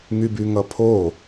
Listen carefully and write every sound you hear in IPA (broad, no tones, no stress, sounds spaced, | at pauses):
ŋ y b y ŋ ʌ pʰ o